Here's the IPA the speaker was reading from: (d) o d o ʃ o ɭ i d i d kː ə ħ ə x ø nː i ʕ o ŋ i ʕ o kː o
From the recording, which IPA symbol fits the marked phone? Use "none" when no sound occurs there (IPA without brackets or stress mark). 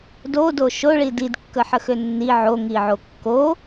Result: d